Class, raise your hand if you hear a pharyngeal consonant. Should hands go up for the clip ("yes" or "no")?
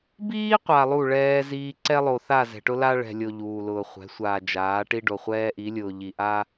no